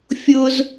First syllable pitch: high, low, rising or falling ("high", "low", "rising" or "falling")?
high